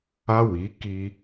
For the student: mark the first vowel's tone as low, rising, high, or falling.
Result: high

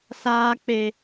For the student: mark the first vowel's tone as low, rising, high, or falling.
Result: high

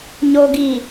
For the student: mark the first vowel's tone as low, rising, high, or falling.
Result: low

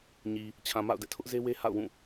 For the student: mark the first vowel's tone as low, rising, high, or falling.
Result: low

